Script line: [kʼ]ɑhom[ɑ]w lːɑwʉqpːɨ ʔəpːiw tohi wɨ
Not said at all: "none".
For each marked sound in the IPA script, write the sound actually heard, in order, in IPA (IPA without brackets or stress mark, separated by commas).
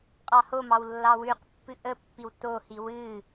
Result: qʼ, ɑ